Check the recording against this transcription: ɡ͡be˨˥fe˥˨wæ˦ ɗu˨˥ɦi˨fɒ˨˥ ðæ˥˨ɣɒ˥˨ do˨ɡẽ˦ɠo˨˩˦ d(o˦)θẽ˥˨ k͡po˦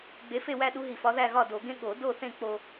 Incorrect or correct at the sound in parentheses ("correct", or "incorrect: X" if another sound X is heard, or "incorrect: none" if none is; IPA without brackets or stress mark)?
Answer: incorrect: o˥˨